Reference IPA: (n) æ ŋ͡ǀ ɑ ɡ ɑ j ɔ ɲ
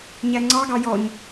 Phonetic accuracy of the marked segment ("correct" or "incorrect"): incorrect